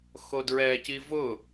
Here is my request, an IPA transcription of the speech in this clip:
x o d ɹ ɛ c i v ʊ

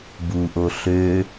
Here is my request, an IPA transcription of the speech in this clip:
b u ʔ o ɬ ø

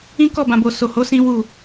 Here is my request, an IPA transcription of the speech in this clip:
ĩ˦ k ɔ˦˨ b ã˨ b o˨ s o˨ h o˨˦ s ĩ˦ w u˦˨

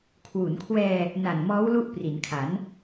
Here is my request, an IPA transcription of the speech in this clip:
kʰ w u˩˦ n kʰ w ɛː˧ | n a˨˩ n m ɔː˦˥ w l u˥˩ ʔ p r i˩˦ n kʰ a˩˦ n

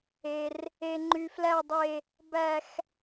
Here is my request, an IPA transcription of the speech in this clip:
e˩ r | e˩ ŋ͡ǃ y˩ f l æ˨ dˤ e˨ | b æ˨ x

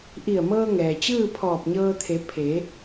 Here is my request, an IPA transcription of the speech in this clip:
ʔ i˧˩ ə̯ m ɤː˧ ŋ ɛː˩ t͡ɕ ɯː˥˨ pʰ ɔː˧˩ p̚ ɲ ɤː˧ t̪ʰ e˩˧ pʰ e˩˧

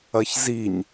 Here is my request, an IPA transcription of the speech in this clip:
ɐ ç z i ɲ

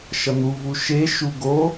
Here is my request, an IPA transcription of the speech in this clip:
ʃ ʌ n̪ u v u ʃ e ʃ u ɡ o

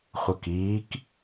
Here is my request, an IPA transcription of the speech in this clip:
χʷ ə k iː k

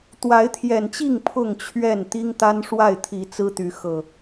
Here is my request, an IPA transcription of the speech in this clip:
t̪ w a˨˦ ɪ̯ t̪ʰ j ɛ˨˩ n t͡ɕ i˥˨ ŋ pʰ ʊ˥˨ ŋ t͡ɕʰ ɥ ɛ˥˨ n t̪ i˦ ŋ t̪ a˦ n ʂ w a˥˨ ɪ̯ t̪ʰ i˨˦ t͡s ɹ̩˦ t̪ y˨˦ x ɤ˨˩

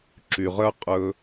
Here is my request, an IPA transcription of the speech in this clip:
ǁ y˨ ʁ œ˦ qʼ ɵ˧

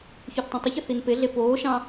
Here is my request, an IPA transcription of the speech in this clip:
ç y θ tˤ ẽ tˤ ɯ ç ɯ θ i n p e ɮ e p oː ʃ ɑ̃

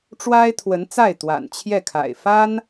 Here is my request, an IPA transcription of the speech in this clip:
ʈ͡ʂ w a˥ ɪ̯ t̪ʰ w ə˧˥ n t͡s a˥˩ ɪ̯ t̪ w a̰˨˩ n t͡ɕʰ j ɛ˥˩ kʰ a̰˨˩ ɪ̯ f a˥ n

